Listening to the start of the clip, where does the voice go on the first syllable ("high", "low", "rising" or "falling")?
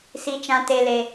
high